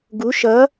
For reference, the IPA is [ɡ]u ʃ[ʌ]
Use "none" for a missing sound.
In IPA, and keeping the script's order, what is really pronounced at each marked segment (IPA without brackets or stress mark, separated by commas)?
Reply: ɡ, ʌ